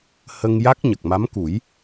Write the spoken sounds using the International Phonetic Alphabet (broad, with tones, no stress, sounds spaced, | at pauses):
h ə˧ ŋ j a˦˥ k̚ ɲ ə˨˩ k̚ m a˧˥ m k u˨˩˦ j